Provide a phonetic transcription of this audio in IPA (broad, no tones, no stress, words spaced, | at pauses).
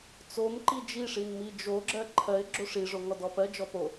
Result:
t͡som ǃid͡ʒiʂin mid͡ʒoɡ͡ǁɜ ǃʰɜɪ̯ ɡ͡ǁoʂiʐo ŋɔdɔpɜ d͡ʒɔpo